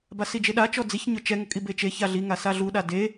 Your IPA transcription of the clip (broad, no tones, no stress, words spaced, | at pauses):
basid͡ʒeɗa t͡ʃɔd͡ziç ɲʊt͡ʃɛ ŋʊkʼibet͡ʃe çaɮi ŋasaɮu ɗade